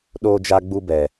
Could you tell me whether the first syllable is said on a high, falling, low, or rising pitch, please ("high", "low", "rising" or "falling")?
high